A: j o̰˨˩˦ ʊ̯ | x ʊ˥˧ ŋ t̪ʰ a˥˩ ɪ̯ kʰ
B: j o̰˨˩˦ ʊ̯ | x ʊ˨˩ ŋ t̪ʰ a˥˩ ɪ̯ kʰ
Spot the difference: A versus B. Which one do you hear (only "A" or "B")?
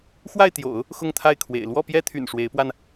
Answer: A